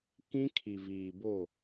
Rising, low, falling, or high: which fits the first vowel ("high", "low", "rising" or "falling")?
high